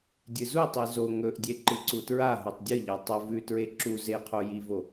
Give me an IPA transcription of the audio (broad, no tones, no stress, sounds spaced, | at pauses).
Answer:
dʲ ɨ z u tˤ i z o ŋ ɵ ʔ dʲ e ǃ ɨ ǀ u t ɹ a ɦ o tˤ dʲ ɨ ʎ a tˤ ɐ v ʉ t ɹ e ǁ u z e qʰ o j i v o